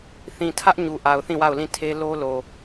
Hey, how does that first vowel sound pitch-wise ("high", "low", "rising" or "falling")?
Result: low